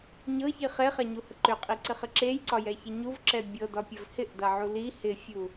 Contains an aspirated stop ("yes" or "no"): no